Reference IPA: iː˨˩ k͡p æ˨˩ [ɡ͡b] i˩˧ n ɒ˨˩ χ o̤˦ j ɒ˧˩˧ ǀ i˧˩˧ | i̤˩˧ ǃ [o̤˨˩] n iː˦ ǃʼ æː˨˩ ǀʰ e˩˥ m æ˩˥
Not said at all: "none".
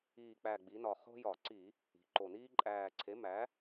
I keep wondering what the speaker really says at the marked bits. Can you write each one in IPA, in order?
ɡ͡b, o˨˩

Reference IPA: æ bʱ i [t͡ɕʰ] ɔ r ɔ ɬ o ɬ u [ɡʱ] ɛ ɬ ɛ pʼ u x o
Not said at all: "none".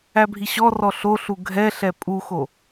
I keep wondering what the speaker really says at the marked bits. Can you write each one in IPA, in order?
ɕ, ɡʱ

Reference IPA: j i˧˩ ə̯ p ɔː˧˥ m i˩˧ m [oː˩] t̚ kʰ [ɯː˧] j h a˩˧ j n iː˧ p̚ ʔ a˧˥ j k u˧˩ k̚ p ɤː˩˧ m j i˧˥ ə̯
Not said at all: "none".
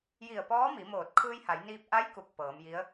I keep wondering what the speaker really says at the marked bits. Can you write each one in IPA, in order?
oː˧˩, ɯː˧

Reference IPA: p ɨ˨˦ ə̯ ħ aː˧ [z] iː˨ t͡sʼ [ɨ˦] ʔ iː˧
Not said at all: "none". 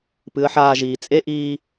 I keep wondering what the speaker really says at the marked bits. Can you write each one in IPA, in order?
ʒ, e˦

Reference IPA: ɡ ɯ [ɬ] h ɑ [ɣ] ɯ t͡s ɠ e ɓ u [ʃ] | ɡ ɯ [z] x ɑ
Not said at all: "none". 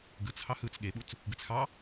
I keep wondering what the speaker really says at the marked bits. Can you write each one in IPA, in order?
t͡s, h, t͡s, t͡s

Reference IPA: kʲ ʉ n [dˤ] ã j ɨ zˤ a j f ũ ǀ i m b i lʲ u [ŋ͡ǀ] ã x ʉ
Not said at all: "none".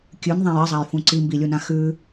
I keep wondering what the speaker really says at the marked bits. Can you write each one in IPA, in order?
ðˤ, n

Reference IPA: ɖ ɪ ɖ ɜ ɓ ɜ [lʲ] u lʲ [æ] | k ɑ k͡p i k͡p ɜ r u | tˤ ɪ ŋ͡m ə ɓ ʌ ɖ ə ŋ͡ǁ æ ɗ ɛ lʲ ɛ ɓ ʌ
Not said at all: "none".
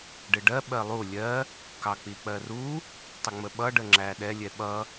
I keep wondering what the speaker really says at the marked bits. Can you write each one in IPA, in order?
lˠ, ɜ

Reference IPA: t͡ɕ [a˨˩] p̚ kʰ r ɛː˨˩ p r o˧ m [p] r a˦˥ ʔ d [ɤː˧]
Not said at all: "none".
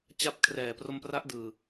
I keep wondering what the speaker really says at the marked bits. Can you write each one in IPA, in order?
a˦˥, p, ɯː˧

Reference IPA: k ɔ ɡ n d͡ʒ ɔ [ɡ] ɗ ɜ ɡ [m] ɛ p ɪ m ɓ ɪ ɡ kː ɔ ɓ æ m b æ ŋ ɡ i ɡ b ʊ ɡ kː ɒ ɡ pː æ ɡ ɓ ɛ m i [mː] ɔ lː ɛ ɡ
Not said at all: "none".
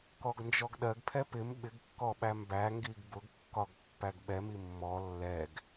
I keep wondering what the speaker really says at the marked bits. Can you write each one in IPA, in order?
ɡ, pʰ, mː

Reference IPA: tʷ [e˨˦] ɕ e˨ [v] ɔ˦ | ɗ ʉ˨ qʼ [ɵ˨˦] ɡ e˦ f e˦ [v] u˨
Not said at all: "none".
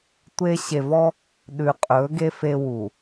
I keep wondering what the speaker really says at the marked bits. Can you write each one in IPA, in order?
e˦, v, ɵ˨˦, w

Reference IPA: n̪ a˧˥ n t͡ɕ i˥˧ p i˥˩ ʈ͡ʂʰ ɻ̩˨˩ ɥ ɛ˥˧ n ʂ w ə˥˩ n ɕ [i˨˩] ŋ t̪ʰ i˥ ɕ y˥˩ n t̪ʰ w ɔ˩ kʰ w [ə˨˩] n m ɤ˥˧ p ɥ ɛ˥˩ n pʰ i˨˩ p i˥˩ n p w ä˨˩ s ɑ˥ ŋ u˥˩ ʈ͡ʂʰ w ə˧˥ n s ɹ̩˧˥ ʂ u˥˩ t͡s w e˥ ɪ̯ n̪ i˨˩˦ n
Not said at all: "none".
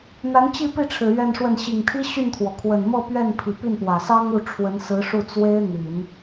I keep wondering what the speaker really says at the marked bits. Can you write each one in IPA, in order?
i˨˩, ə˨˩

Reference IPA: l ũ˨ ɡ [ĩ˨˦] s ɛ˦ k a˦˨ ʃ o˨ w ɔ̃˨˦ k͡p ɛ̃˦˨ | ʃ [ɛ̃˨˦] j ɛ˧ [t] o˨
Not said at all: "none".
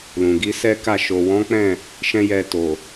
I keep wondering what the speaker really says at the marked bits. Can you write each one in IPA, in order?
i˨˦, ɛ̃˦, t

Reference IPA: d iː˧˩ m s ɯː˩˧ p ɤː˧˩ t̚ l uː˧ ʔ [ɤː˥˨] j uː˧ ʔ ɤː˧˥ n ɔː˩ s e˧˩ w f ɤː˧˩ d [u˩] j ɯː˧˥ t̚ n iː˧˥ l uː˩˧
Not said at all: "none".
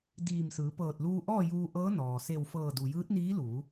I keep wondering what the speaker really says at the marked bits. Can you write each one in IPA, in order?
ɔː˥˨, u˩

